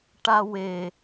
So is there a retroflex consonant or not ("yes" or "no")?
yes